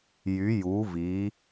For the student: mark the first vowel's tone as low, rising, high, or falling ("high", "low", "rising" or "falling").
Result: rising